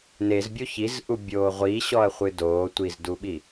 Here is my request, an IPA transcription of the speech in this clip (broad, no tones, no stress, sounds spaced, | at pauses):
n e z bʲ o ç i z ʔ u bʲ oː ʁʷ i ɕ ɔ ɐ̯ χʷ ɨ d oː tʷ i z d u ɓ i